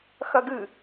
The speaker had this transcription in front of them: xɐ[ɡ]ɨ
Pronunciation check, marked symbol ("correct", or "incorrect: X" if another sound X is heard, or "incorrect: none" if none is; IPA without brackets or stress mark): correct